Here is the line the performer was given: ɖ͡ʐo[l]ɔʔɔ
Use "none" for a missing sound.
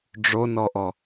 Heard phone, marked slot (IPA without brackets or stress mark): n